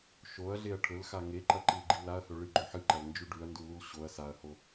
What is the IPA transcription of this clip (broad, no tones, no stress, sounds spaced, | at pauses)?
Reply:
ʃ o ɐ̯ ɮ e ɐ̯ ʈʰ ɵ l x a ŋ e ǃ ɐ ǃ i l ɡ͡ǃ i l a ɐ̯ h ɵ ɭ ɨ ɡ͡ǃ ɵ ħ ɨ ǃ ɐ l n d͡ʒ ʉ ɖ ʉ ɐ̯ n d u l u l ɕ o ɐ̯ s a ɐ̯ h o